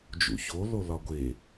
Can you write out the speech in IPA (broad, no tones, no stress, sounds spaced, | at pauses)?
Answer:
d͡ʒ ṵ ç o l o l ɒ ɡʷ e